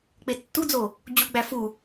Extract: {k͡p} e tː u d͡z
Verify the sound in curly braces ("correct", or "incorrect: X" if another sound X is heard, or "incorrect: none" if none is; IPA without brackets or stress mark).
correct